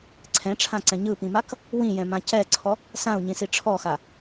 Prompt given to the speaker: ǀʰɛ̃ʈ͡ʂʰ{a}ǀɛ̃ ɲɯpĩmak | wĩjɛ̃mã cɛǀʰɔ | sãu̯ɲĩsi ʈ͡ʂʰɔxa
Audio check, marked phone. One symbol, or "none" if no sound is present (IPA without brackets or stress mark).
ã